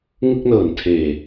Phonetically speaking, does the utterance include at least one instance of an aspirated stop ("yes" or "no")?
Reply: yes